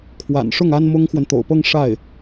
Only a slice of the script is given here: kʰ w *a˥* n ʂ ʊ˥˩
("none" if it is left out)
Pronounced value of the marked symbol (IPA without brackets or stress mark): a̰˨˩